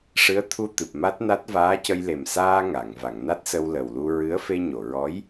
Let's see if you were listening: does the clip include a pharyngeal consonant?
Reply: no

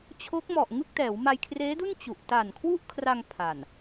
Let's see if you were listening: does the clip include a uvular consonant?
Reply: no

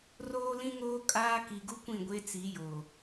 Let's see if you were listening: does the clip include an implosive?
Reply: no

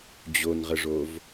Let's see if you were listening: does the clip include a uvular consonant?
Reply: yes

